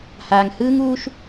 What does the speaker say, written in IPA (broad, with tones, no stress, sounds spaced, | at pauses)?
h aː˧ ŋ h ɯː˦ ŋ uː˦ ʃ